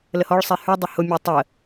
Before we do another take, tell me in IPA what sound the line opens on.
l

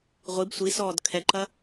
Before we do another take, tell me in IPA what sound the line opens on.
ʁʷ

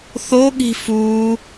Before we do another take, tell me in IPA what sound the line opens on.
θ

